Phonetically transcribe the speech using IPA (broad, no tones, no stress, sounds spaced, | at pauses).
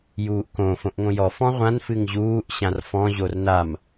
j uː ʔ k õ f õ ʔ ŋ õ j ɔ f ɔ̃ ʁʷ ã n f ɨ ŋ ʑ uː ʔ ɕ ã r f ɔ̃ ʑ o r n a m